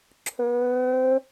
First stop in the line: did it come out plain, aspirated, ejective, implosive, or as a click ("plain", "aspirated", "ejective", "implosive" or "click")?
click